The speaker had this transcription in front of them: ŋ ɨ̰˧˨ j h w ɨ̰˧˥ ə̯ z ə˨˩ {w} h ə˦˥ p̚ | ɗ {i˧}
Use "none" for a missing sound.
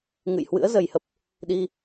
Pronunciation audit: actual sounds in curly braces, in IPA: j, i˧

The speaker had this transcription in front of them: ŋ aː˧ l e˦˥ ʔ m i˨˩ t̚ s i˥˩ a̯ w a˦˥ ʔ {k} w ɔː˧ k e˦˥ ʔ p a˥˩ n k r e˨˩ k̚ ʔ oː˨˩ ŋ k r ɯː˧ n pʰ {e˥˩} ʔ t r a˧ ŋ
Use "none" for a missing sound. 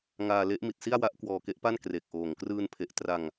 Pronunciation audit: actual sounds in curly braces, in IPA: k, e˨˩

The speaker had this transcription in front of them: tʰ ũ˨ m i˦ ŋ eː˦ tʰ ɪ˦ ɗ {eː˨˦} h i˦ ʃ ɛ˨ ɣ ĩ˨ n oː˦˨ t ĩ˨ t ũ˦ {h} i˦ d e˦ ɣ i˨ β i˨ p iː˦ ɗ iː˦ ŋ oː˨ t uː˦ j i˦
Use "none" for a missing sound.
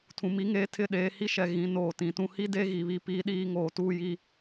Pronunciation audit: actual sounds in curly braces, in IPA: eː˨˦, h

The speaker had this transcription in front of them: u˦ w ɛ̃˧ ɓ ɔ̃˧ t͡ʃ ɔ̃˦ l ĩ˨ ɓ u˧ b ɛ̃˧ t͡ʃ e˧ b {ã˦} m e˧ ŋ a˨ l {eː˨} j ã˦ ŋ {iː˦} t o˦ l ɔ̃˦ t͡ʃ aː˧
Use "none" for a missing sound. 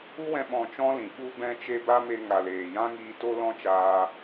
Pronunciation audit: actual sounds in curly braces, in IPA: a˦, eː˨, iː˧

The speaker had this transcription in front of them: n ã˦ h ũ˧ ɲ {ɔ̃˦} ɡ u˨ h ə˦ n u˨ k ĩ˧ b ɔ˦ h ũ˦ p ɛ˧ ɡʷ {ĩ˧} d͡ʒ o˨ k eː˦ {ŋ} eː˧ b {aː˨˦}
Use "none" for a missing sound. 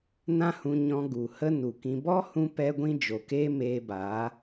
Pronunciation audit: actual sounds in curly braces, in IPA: ɔ̃˧, ĩ˧, m, aː˨˦

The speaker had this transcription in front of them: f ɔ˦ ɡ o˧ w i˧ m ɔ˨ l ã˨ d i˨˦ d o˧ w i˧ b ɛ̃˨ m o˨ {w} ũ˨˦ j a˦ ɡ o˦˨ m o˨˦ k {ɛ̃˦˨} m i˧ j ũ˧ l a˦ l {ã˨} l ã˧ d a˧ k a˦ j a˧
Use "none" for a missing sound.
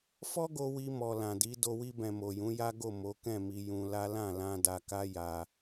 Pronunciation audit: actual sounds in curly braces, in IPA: j, ɛ̃˦˨, ã˦˨

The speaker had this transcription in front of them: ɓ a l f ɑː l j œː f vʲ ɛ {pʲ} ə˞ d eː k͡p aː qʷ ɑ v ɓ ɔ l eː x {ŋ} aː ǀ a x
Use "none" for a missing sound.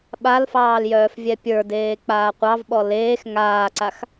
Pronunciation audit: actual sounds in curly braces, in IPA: pʲ, ŋ

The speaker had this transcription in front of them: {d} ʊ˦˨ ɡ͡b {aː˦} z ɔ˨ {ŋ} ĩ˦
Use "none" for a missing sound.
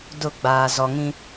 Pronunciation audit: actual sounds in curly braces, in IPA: d, aː˨, ŋ

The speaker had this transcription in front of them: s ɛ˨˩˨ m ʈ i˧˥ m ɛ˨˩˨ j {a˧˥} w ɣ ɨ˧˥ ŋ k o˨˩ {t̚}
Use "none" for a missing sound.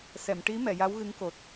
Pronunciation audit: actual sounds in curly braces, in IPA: a˧˥, t̚

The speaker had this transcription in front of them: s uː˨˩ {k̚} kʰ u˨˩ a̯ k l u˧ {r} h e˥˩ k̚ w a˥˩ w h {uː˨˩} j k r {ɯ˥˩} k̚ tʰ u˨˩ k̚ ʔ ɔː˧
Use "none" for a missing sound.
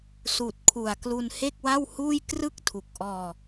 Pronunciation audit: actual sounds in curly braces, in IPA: t̚, n, uː˥˩, ɯ˥˩

